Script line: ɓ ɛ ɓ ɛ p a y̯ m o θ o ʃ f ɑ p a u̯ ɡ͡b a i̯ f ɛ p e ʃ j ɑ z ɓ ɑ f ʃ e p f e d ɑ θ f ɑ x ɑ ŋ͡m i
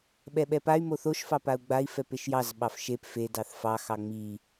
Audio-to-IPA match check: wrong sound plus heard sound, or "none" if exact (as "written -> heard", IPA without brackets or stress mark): none